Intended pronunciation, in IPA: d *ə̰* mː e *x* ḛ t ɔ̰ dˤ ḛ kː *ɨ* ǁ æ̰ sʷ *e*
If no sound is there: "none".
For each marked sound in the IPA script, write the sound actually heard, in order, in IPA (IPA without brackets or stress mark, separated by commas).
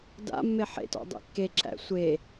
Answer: a̰, ħ, e, e